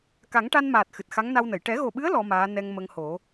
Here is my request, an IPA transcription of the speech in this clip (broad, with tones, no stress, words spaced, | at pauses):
ka˨˩˦ŋʈa˧nmaː˨˩t̚ xɨ˨˩t̚xa˧˥ŋ na˧wnə˨˩˨j ʈɛ˨˩˦ɣo˨˩ɓɨ˧˥ə̯ lɔ˧˥maː˧˥ nɛ˧ŋ mə˧ŋho˨˩˦